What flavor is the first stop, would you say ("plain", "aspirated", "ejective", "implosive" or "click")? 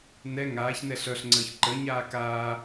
click